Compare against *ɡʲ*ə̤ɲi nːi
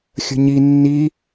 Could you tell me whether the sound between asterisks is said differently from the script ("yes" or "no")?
yes